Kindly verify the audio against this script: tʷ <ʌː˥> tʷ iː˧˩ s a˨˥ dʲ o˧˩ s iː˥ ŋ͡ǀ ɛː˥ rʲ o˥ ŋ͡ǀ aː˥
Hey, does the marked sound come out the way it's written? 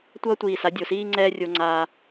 yes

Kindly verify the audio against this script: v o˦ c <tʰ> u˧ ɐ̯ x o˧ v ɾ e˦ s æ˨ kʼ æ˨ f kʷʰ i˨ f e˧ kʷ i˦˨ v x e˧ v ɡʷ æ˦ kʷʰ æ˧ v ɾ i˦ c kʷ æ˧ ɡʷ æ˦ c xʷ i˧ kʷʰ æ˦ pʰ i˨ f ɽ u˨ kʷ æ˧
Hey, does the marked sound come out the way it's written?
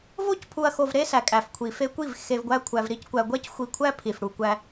no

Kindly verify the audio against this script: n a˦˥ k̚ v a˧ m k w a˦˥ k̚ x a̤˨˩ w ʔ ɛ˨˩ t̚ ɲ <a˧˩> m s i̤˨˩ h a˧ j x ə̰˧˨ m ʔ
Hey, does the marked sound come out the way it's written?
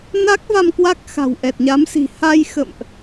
no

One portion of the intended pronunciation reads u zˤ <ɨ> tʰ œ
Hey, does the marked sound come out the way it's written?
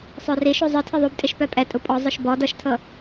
yes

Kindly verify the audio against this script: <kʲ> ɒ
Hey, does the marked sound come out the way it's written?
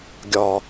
no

